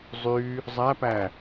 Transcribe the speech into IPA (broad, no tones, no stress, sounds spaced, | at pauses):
zˤ y | zˤ æ p æ